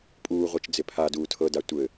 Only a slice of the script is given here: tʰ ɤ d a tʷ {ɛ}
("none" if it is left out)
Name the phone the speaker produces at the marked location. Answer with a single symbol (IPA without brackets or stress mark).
ɘ